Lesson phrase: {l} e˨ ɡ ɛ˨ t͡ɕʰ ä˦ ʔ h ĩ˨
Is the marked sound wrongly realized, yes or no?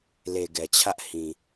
no